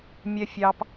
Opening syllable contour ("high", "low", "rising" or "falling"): low